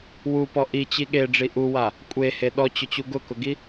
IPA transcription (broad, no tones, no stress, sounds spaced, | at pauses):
w u p ɔ ʔ i t͡ɕ i ɠ e ɖ͡ʐ i ʔ u w a | kʷʼ e h e ɗ ɔ t͡ɕ ʊ t͡ɕ u ɡ ʊ k ʊ ɡ i